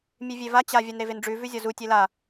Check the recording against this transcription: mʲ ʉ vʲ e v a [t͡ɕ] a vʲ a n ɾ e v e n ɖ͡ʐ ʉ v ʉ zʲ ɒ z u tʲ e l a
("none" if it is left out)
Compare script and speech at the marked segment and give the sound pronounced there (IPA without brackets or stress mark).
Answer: t͡ɕ